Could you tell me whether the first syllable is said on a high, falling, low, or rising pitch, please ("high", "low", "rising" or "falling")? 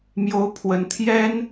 rising